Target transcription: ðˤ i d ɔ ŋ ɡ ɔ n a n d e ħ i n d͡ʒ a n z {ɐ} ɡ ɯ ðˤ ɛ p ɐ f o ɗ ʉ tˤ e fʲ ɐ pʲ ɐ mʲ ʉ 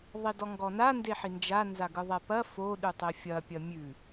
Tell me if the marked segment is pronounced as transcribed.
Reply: no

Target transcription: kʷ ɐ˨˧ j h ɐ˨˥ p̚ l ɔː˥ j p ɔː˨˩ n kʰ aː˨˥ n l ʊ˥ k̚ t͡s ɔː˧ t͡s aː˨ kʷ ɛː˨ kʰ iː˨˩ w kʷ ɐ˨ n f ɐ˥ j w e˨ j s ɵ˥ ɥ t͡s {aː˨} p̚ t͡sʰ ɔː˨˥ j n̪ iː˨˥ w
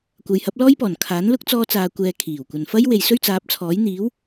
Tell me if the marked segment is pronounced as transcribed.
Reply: no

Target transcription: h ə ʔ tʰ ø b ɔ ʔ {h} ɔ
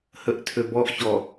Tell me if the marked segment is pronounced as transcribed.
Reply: no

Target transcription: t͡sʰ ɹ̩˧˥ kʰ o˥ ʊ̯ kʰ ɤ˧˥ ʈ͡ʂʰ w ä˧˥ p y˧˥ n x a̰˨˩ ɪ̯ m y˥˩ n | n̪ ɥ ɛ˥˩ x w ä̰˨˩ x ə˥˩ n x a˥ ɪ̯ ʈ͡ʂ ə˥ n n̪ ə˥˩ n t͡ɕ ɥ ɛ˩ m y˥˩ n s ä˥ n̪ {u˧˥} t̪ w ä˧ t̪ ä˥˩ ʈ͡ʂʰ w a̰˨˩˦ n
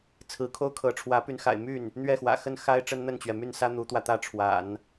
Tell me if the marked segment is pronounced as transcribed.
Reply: yes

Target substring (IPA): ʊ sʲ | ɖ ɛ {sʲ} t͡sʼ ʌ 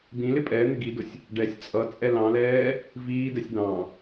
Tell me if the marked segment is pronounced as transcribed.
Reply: yes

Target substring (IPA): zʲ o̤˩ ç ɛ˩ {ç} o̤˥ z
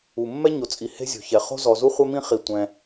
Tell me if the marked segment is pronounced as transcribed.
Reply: no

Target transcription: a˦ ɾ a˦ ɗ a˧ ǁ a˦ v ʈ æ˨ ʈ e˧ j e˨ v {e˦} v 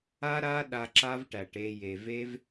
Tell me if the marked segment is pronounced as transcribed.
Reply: yes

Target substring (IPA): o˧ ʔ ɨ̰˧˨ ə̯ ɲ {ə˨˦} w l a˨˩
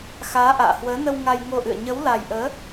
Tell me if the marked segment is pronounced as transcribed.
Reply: yes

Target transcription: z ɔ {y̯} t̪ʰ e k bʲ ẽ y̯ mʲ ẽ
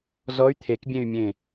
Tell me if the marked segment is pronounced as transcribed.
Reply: yes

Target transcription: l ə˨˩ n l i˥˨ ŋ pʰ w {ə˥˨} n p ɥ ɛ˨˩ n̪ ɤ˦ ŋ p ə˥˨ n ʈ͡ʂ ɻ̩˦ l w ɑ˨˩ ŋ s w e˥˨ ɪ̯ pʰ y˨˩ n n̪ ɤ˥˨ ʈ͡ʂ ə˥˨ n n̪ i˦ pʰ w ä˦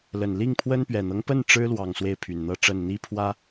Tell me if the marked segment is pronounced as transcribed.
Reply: no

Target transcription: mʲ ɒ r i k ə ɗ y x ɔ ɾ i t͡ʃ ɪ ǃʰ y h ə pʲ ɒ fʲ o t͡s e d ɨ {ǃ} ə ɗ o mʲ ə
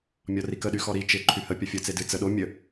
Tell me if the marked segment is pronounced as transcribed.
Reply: no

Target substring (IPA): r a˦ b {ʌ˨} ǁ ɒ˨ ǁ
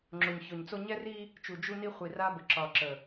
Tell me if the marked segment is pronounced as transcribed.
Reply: no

